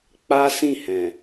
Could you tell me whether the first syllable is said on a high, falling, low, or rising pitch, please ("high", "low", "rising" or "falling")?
high